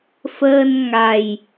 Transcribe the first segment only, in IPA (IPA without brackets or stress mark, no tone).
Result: f